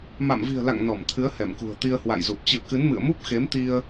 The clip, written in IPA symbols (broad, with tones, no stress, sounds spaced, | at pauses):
m a̰˧˨ m v i̤˨˩ ə̯ l a̰˧˨ ŋ n ɔ˧˩ m t̪ʰ ɨ˨˦ ə̯ h ɛ˧˩ m k ṳ˨˩ ə̯ t̪ i˧ ə̯ h w a̰˧˨ j z u˨˩ p̚ t͡ɕ ɨ̰˧˨ ə̯ k ɨ˨˦ n m ɨ̰˧˨ ə̯ m u˦˥ p̚ x e˨˦ m t̪ i˧ ə̯